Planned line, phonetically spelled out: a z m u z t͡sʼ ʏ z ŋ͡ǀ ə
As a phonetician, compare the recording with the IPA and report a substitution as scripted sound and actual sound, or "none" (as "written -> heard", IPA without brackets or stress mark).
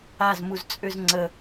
none